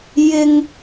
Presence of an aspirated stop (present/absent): absent